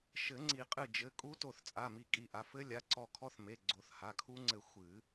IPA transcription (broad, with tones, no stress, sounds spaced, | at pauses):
ʃ ɘ˨˩˦ ŋ͡ǀ i˨˩˦ qʼ ɨ˧˩ d͡ʒ ɘ˩˧˩ kʼ u˦˥ t o˧˩ θ t͡sʼ a˩˧˩ m i˧˩ kʼ i˧˩ ʔ a˩˧˩ f ɘ˦˥ lʲ a˩˧˩ ǀ ɔ˧˩ kʰ ɔ˦˥ θ m e˩˧˩ ɡ͡ǀ o˨˩˦ θ h a˩˧˩ kʰ u˦˥ ŋ͡ǀ ɘ˧˩ xʷ ɨ˨˩˦